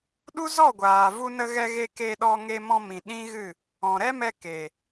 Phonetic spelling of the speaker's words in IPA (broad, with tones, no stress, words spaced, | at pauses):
ɗu˦zɔ˦˨ɡʷaː˨ vu˧nə˧ɣɛ˧ɣe˧ ke˧ ɗɔ˧ŋe˧mɔ̃˧mĩ˨ ɗĩ˦ɣɨ˦˨ | ɔ̃˨ɾɛ˦mɛ˧ ke˨